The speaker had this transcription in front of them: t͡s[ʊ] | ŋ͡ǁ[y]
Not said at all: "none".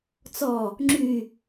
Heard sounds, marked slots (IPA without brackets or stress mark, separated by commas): ɔ, y